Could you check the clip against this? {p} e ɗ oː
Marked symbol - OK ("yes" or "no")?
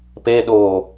yes